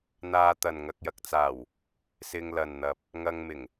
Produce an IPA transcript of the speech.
n̪ aː˧ t̪ ɐ˨ n ŋ ɐ˨ k̚ j ɐ˨ k̚ t͡s aː˨˩ w | s ɪ˧ ŋ l ɐ˨ n n̪ ɐ˨ p̚ | ŋ ɐ˧ ŋ m ɪ˨˩ ŋ

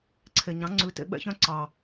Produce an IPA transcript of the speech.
ǀʰ e˨ ɲ ɑ̃˨˦ ŋ͡ǀ ʉ˨˦ t ḛ˧ ɓ ɛ̰˦ ç œ̃˦ ǀ ɑ˨

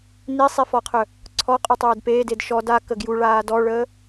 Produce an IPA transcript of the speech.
n i sˤ i f ɔ qʰ œ | ǀʰ ɔ qʼ u tˤ øː d p eː d e d ʃ ɔ d a k ə ɡ j u ɭ aː d ɔ ɭ əː

